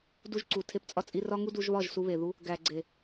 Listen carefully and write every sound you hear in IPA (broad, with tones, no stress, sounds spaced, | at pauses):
d u˧ ʒ ǀ u˨ tʰ e˧ p t͡sʼ ɒ˧ t͡sʼ i˧ r ɒ˦ ŋ u˦ d u˧ ʒ β ɒ˦˨ ʒ s u˧ β e˨ ð u˧ | ɡ æ˨ ɡ͡ǀ e˨